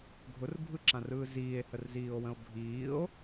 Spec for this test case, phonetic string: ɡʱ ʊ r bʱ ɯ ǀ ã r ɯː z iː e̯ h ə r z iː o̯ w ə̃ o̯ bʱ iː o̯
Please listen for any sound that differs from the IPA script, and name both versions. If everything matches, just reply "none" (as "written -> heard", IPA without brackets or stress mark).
ǀ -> ǁ